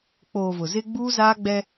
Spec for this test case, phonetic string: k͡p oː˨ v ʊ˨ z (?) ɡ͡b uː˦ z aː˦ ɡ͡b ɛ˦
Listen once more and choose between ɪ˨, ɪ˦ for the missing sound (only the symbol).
ɪ˦